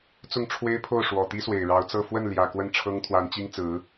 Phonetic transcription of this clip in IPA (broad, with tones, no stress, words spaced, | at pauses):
t͡sʊ˥˩ŋʈ͡ʂʰwe˥ɪ̯pʰo˥˩ʊ̯ ʂwɔ˨˩t̪i˥swe˨˩ɪ̯ ɻɑ˧˥ʊ̯t͡sɤ˥˧ fwə˥˩nljä˨˩ kwə˥˩nʈ͡ʂʰɤ˥ŋt̪ʰwa˧˥nt͡ɕi˥ŋ t͡sɹ̩˧˥